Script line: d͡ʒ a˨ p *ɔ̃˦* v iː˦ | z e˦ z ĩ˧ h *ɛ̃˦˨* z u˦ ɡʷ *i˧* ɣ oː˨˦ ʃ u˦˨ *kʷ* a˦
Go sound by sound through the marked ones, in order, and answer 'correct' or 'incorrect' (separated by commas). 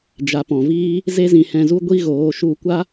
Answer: incorrect, incorrect, incorrect, correct